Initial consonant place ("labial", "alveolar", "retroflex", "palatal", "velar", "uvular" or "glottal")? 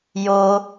palatal